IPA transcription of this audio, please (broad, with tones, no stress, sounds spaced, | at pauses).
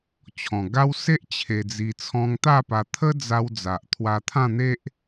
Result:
t͡ɕʰ ɔ̃˨˩ ɡ a˦ w s e˦ ʔ t͡ɕʰ e˧ d͡z i˧ t͡sʰ ɔ̃˧ ŋ t̪ a˥˧ p a˧ t̪ʰ ə˦ d͡z a˧ w d͡z a˨ ʔ t̪ʰ w a˧ t̪ʰ ã˥˧ n̪ e˦ ʔ